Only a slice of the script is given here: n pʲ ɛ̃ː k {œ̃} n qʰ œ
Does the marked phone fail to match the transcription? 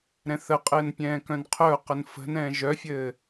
no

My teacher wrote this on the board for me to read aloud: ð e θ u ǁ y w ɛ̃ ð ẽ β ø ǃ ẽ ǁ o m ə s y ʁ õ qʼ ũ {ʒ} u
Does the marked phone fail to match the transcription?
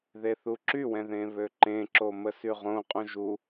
no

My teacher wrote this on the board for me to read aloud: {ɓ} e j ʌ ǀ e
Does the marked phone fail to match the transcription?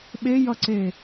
no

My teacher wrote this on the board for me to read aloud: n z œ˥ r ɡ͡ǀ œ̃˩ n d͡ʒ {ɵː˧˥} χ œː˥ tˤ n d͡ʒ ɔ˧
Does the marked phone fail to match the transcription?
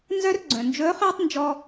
no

